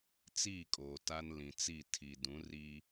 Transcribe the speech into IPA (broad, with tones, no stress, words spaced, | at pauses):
t͡siː˦˨kʼoː˨ ta˦n lĩ˨ t͡si˦˨ tʰi˨dũ˨˦ ri˦